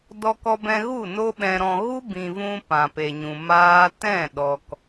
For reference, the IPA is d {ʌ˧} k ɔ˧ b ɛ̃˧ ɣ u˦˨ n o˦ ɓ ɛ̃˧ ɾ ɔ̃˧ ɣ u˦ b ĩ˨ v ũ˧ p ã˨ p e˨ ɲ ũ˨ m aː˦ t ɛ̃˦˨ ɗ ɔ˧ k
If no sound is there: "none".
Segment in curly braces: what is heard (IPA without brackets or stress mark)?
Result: ɔ˧